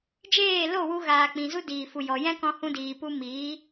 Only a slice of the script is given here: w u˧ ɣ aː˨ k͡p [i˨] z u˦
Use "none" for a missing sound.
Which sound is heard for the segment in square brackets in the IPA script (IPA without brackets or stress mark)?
ĩ˨